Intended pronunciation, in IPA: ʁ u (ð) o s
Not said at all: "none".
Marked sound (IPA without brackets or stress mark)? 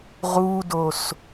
d